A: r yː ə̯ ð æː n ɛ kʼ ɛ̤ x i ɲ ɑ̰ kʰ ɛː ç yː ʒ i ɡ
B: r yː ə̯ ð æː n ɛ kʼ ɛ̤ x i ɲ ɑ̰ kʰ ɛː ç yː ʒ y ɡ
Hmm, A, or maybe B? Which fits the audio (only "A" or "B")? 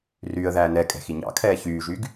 B